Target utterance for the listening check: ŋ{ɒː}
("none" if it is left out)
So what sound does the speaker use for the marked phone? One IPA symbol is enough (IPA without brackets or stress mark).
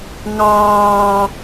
ɑː